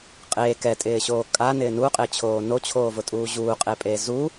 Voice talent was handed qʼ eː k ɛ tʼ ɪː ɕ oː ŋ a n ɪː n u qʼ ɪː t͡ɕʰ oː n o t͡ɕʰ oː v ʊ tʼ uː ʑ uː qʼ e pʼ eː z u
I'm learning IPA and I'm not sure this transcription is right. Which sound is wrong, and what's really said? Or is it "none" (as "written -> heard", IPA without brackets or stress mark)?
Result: ŋ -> kʼ